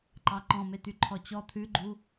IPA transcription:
ǃ ɑ ǃ ɔ̃ m e t̪ y ǃʰ ɔ t͡ɕ ɔ t̪ʰ ʉ ɡ͡ǃ u

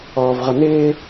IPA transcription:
ɔː v ʁ ʌ n ɪː

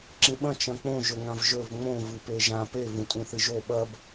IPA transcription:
ǁ ĩ ɓ ɐ̃ t͡ʃ ɐ̃ k͡p õ ʒ ɵ ŋ ã v ʒ ɵ v ŋ͡m õ v ɨ p e ʒ ã p e v ũ tʼ ũ θ ɨ ʒ o ɓ ɐ b

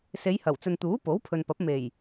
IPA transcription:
s e˨˧ j h ɐ˨˩ w t͡s ɵ˨ n t̪ uː˨˥ p o˨˥ w pʰ ɵ˨ n p ɐ˨˥ p̚ m e˨˩ j

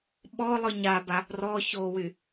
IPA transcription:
ɓ ɔ lˠ ɯ ɲ a b a | r ɔ ç o w y

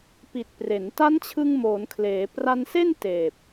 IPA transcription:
p i˨˩ t̚ p r e˩˦ n t a˦˥ n t͡ɕʰ ɯ˧ ŋ m oː˩˦ n kʰ l eː˩˦ p r a˧ n s e˥˩ n t eː˨˩ p̚

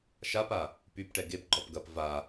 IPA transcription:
ʃ a p a | p y p ʈ ɛ ɡ e p ɡ͡ǃ ɔ p ɡ ɐ p v a

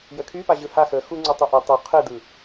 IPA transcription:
j ə kʰ y p a ʑ ɯ h a x ə x u ŋ͡ǀ u tˤ y ʔ i tˤ u qʰ ɯ d ɯ

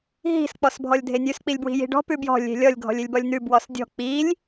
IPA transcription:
ɦ i̤ s k͡p ɔ s bʱ ɔ lʲ dʱ e nʲ ʉ s k͡p i lʲ b w i̤ j i̤ ɖ ɔ̤ p ʉ b j ɔ̤ lʲ e̤ lʲ ɔ lʲ ɡʱ ɔ̤ lʲ e lʲ b ɔ lʲ n̪ ʉ b w ɔ s dʲ ɔ̤ k͡p i lʲ

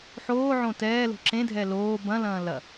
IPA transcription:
ħ oː ʕ õ t ɛː l o̤ ǁ ẽ dʱ ɛ l oː b ɐ̃ l ɐ̃ː l ɐ

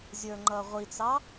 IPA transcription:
zʲ ə˞ ŋ͡ǃ ʌ ʁʷ i t͡s ɑ

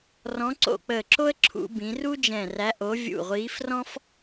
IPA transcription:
r ɔ̃˨˥ ǀ o̰˧˩ k͡p əː˧˩ ǁ o˥ ə̯ ǁʰ ṵ˨˥ b ĩ˨˥ r u˥ d͡ʒ ɛ̃˧˩ r æ˨˥ ʔ o˨˥ vʲ ṵ˧˩ ʁʷ iː˨˥ f r ɔ̃˥ f

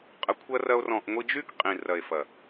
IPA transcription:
qʼ ə˧ kʷʰ ɐ˦ r ɐ˦ o̯ r ɔ̃˧ ʔ ŋʷ i˧ d͡ʒ y˦ k qʼ ĩ˨ r ɐ˨ e̯ f ɐ˨

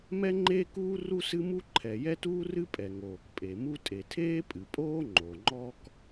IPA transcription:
m ɛ˥ ŋ͡ǃ eː˥ k uː˥ r u˥ s ɨ˥ m u˥ ǃʰ ɛ˩ j ɛ˥ t uː˥ r ɨ˥ pʼ ɛ˩ ŋ oː˩ k pʼ e˩ m u˥ tʼ e˩ tʰ eː˥ pʼ ɨ˩ pʼ oː˥ ŋ͡ǃ o˩ ŋ͡ǃ ɔ˥ k

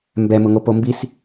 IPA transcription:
m b ɛ m ʊ ŋ o p o m b i s

